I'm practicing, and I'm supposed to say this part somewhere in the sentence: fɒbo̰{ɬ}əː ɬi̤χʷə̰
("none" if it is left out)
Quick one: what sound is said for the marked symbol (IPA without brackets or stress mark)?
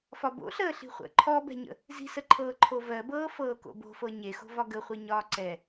ɬ